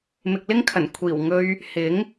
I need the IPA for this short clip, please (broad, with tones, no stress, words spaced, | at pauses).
mɪ˨k̚lɪ˥ŋkʰɐ˨˩n kʷʰiː˨˩wŋɵ˧ɥ | hɪ˨˥ŋ